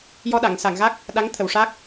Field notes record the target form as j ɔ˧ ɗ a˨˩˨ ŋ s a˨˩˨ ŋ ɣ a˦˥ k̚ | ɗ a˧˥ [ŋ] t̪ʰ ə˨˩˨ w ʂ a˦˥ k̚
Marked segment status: correct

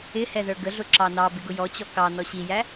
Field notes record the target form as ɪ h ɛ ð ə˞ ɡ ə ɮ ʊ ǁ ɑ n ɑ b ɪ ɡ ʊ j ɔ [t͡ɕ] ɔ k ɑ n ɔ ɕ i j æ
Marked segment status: correct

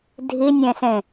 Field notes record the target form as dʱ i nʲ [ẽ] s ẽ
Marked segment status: correct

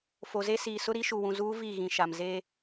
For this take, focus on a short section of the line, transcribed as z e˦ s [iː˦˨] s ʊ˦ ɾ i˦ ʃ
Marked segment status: incorrect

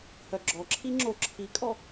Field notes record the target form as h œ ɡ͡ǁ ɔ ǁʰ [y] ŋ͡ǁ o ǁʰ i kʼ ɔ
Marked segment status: incorrect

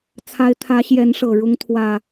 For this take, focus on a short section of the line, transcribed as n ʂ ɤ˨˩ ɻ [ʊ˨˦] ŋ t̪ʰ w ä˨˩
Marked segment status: correct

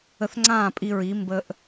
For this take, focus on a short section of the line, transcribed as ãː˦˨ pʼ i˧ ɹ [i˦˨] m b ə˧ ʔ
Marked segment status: incorrect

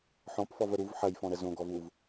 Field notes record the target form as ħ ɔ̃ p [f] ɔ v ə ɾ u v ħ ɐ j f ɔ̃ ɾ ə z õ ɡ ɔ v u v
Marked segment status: correct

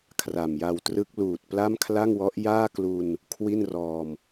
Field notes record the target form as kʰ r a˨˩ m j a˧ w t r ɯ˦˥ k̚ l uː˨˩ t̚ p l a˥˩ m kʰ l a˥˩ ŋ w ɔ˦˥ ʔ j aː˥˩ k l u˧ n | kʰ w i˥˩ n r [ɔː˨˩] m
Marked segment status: incorrect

